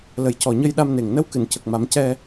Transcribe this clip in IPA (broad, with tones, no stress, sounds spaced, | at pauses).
l ə˨˩ j c ɔ˨˩ ɲ ə˧ j ɗ a˧ m n e˨˩ ŋ n ə˧˥ w k ɨ˨˩˨ n c ə˨˩ k̚ m a˨˩˦ m c ɛ˧